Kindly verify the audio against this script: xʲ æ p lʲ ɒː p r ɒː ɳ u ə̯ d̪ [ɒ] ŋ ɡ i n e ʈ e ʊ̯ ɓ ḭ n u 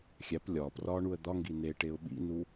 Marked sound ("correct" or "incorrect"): correct